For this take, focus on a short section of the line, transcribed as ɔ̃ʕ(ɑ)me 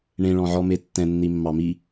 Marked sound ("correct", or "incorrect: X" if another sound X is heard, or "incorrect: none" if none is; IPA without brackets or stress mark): incorrect: ɔ